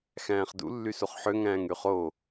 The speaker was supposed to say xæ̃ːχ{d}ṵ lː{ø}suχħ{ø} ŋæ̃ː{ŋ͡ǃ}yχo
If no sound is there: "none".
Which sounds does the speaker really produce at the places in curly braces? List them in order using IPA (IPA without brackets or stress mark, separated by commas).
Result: d, y, ø, ŋ